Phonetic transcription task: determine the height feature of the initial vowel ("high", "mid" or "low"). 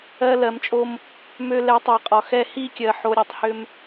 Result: mid